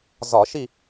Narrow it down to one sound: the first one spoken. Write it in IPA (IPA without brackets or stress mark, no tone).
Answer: z